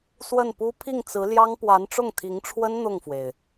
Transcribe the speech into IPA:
s w ə˥˩ n p u˥ pʰ i˥˩ ŋ t͡s ɹ̩˧˥ l j ɑ˥ ŋ p w a˧˥ n ʈ͡ʂ ʊ˥˩ ŋ t̪ʰ i˧˥ ŋ ʈ͡ʂʰ w ə˥ n n̪ ʊ˥˩ ŋ f w e˩ ɪ̯

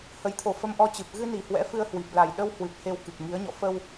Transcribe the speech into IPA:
h ə˨˦ j t̪ʰ o˨˩ f ə˧ m ʔ ɔ˧ t͡ɕ ɨ˨˩ p̚ ɣ ɨ˧ n i˧˩ h w ɛ̰˧˥ f ɨ˧ ə̯ h w i˨˩ p̚ l a˨˩ j ɗ ə˧ w h w ɨ˨˩ p̚ h e˧ w k ɨ˨˩ k̚ ŋ i˨˦ ə̯ ɲ ɔ̰˧˨ f ə˧ w

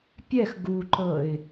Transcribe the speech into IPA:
pʲ ɛ x ɡ u ǃ ɤ ɪ̯

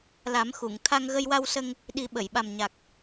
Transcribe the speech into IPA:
l a˨˩˦ m x u˨˩˨ ŋ t̪ʰ a˧ ŋ ɣ ə˧ j w a˧ w s ə˧ ŋ | ɗ i˨˩˦ ɓ ə˨˩˨ j ɓ a˨˩ m ɲ a˨˩ k̚

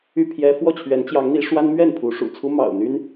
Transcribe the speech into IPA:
y˥˨ pʰ j ɛ˦ f w ɔ˥˨ t͡ɕʰ ɥ ɛ˨˦ n t͡ɕ j ɑ˨˦ ŋ n̪ i˨˦ ʂ w a˦ n m ɥ ɛ˥˨ n pʰ u˨˦ ʂ ṵ˨˩ t͡sʰ u˦ m ɑ̰˨˩ ʊ̯ n̪ y˦ n

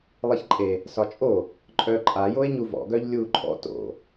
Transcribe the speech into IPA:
lˠ i ç ǃʼ e | s ɒ t͡ʃʼ o | ǃʼ œ ǃʼ a j o e̯ ɲ u v ɔ̰ ɡ œ ʎ lʲ uː ǃʼ ɔ̰ t o̰

